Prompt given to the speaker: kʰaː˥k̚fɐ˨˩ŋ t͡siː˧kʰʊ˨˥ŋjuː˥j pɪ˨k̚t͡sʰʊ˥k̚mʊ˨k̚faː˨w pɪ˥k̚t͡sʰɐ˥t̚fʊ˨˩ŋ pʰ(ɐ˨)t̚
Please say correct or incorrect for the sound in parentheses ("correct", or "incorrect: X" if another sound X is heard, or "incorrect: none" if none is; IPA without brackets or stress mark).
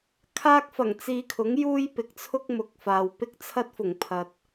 correct